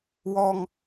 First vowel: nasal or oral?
oral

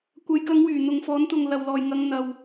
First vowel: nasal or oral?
oral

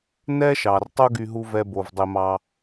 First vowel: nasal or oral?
oral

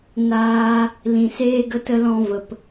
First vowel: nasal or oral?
oral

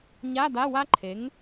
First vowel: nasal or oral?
oral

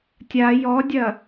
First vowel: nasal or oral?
oral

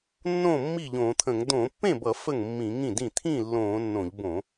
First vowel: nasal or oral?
nasal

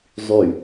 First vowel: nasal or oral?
oral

